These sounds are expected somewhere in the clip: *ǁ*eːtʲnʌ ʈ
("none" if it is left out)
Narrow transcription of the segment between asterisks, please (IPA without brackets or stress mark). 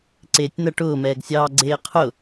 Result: ǀ